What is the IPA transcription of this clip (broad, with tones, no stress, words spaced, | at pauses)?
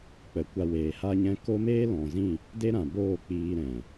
k͡pə˨˦kʷa˧ weː˨ha˧ɲɛ̃˧ ko˦meː˦ lɔ̃˨zĩ˦˨ | de˦ɾã˨boː˦˨ k͡piː˧ɾɛ̃˨